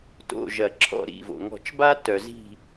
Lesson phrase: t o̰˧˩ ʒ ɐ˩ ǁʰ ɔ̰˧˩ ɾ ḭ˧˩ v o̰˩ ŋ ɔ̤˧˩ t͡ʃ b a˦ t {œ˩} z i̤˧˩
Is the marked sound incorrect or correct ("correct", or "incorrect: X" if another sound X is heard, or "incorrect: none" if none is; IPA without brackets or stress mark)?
correct